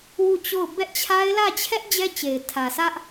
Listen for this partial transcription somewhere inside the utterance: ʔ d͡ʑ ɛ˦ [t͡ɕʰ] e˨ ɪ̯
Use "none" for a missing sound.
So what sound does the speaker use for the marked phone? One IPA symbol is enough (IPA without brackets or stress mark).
t͡ɕ